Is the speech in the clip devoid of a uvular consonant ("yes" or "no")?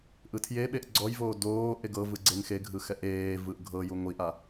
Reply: yes